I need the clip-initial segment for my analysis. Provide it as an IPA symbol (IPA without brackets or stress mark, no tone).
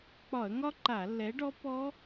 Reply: k͡p